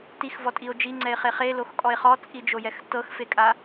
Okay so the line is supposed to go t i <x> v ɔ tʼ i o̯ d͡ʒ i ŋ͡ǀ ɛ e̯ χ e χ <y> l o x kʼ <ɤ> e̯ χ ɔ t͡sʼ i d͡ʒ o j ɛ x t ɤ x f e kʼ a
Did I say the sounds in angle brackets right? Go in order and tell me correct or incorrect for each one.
correct, incorrect: e, incorrect: ɔ

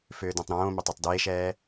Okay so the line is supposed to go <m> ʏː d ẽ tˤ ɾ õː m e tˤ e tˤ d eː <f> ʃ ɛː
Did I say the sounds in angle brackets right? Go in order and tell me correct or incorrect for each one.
incorrect: f, incorrect: none

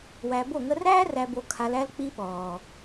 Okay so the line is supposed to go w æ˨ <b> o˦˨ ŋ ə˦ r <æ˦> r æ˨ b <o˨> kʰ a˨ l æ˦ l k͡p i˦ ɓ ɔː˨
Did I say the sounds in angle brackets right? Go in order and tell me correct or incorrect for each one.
correct, incorrect: æː˦, correct

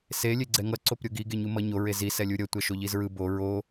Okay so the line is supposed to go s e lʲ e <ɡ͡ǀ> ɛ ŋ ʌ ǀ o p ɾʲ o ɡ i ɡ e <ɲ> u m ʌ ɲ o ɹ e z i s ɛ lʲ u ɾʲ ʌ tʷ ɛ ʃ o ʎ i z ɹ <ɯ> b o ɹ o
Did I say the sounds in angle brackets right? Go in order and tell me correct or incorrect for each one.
correct, correct, correct

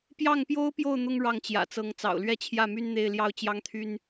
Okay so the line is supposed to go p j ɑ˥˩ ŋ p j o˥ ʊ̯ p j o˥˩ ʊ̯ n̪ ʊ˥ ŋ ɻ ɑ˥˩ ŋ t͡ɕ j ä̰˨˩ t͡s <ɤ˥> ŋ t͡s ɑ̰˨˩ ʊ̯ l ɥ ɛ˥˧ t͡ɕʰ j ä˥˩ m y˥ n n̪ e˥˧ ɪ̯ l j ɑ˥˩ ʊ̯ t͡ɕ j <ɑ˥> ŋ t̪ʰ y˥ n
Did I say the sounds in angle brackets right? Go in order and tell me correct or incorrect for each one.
incorrect: ɤ˧˥, correct

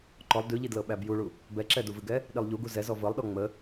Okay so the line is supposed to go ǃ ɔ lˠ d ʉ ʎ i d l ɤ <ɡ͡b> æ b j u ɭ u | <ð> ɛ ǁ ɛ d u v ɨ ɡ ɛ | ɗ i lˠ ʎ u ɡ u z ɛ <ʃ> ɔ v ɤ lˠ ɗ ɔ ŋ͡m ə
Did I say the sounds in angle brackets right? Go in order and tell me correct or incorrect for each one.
incorrect: ɓ, incorrect: b, incorrect: z

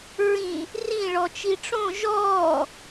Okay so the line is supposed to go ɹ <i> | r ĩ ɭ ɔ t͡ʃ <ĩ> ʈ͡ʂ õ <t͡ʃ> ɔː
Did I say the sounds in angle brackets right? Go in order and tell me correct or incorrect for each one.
incorrect: ĩ, incorrect: i, incorrect: ʒ

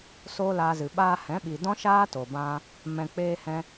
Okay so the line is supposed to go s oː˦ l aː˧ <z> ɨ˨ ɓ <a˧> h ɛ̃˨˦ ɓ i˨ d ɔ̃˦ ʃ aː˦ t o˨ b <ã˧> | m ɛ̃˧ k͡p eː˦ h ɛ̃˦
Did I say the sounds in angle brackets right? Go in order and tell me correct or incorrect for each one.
correct, incorrect: aː˧, correct

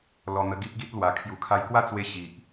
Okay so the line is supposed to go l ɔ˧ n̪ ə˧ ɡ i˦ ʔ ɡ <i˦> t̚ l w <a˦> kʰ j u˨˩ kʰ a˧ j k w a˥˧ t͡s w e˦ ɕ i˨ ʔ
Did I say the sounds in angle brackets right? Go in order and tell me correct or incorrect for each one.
correct, incorrect: a˧

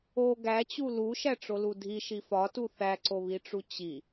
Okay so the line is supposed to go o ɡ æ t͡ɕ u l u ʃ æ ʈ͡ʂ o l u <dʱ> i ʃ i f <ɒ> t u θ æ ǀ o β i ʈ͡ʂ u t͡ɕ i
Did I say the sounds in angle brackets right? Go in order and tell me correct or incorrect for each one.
correct, correct

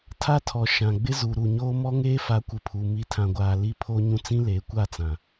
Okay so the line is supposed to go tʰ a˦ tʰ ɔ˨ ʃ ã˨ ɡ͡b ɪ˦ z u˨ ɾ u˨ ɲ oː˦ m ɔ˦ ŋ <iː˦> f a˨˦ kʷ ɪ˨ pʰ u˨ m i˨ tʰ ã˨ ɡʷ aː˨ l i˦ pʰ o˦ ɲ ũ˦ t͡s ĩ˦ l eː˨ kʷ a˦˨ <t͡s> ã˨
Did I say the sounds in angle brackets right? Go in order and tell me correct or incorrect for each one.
incorrect: eː˦, correct

